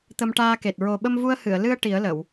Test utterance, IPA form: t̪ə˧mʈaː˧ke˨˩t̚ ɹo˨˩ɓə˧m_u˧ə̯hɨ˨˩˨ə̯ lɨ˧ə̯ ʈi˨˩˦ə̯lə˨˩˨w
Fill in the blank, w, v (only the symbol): v